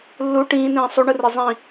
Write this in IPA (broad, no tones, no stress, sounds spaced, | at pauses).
lː u ʈ ĩː n ĩː sˤ u ɳ ɯ r i zˤ ĩ